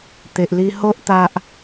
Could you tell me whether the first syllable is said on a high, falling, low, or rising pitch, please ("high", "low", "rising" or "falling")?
low